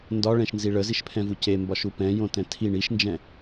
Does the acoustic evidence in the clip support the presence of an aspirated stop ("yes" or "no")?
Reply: yes